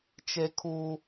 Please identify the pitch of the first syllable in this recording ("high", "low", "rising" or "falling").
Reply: high